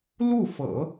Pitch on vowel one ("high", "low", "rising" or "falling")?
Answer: falling